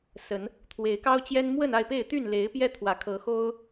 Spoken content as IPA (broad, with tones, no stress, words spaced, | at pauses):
sə˨˦n | t̪ʰwe˨˦ɪ̯kɑ˦ʊ̯t͡ɕjɛ˦n mwə˥˨na˥˨ɪ̯pe˥˨ɪ̯ t̪y˥˨nle˨˦ɪ̯ pjɛ˦t̪ʰwä˨˦kʰɤ˨˦xo˦ʊ̯